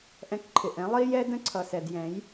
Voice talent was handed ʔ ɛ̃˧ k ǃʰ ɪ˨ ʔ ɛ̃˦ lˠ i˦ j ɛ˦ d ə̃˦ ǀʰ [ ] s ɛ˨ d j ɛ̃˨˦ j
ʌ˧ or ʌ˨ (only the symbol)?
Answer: ʌ˨